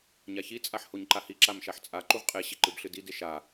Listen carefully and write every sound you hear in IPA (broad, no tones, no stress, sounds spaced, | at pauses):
ɲ a ç i t͡sʼ a ħ h o ɲ ǃ a h i ǁ a m ʃ a ħ t͡sʼ a ǃ u ʁ qʼ e ɕ i ǃ ɨ b ɬ ɨ d i d e ʃ a